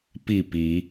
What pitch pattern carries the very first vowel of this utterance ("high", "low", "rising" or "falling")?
falling